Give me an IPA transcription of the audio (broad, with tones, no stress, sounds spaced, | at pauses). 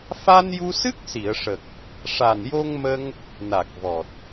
f a˧ n j u˧ s ɨ˦˥ k̚ s i˨˩˨ ə̯ ʂ ə˨˩ k̚ | ʂ a˨˩ n j o˧ ŋ m ə˧ ŋ | n a˨˩ k̚ v ɔ˨˩ t̚